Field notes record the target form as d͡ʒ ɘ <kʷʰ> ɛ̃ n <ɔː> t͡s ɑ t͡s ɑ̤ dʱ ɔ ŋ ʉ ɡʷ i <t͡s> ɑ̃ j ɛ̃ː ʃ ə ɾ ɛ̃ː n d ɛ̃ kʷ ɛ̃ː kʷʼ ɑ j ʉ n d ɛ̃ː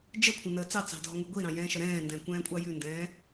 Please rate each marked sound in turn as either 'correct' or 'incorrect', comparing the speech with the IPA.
correct, incorrect: əː, incorrect: ɾ

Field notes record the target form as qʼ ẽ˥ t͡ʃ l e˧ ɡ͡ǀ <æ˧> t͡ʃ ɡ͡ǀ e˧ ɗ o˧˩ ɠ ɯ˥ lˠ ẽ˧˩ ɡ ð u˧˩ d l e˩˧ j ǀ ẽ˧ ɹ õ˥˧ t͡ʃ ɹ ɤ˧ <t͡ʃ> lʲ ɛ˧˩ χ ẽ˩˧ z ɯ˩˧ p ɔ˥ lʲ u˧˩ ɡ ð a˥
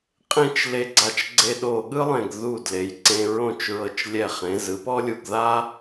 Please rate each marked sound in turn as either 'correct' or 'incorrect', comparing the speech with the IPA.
incorrect: a˧, correct

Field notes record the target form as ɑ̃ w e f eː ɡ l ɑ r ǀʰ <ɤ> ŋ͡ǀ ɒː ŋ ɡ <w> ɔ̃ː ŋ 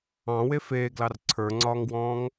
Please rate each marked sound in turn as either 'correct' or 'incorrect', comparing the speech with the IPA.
incorrect: ə˞, correct

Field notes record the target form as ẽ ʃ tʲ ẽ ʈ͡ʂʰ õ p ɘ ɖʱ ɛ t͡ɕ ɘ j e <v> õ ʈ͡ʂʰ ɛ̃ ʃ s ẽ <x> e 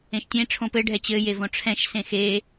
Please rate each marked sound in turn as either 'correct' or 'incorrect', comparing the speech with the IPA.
correct, correct

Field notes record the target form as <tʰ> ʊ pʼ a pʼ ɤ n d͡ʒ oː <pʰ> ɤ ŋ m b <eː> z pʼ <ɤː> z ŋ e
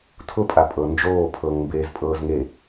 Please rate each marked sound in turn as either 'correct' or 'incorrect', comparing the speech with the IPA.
correct, correct, correct, correct

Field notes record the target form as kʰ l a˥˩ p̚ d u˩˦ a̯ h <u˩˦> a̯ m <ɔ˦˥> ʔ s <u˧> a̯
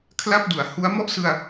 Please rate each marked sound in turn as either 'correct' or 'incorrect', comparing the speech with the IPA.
incorrect: u˦˥, incorrect: ɔ˥˩, incorrect: ɯ˧

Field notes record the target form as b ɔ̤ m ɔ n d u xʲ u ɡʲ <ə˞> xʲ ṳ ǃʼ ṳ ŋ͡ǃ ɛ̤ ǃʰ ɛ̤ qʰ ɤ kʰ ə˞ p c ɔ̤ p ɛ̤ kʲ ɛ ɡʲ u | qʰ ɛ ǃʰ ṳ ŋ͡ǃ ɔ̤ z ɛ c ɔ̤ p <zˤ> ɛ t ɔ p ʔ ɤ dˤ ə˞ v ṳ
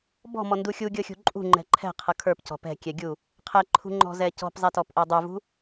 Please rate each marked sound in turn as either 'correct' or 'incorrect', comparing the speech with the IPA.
incorrect: ɤ, correct

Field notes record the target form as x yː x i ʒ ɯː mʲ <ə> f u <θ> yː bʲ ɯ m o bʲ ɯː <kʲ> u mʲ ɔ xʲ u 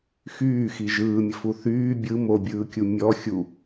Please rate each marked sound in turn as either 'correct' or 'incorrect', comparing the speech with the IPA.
correct, correct, correct

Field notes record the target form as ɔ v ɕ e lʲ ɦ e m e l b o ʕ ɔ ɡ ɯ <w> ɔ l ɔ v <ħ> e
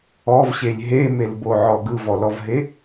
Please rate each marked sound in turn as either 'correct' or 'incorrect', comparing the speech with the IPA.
incorrect: v, incorrect: ɦ

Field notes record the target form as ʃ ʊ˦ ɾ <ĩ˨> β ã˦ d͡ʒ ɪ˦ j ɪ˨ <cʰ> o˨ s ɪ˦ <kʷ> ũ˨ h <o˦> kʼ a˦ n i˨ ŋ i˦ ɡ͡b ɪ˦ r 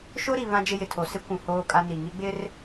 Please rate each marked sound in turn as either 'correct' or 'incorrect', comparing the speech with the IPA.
incorrect: i˨, incorrect: tʰ, correct, incorrect: oː˦

